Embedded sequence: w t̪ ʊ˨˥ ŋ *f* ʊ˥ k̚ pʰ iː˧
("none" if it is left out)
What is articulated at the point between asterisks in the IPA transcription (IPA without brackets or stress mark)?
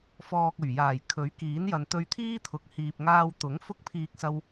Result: f